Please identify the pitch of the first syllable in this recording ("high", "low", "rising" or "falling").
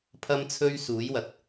high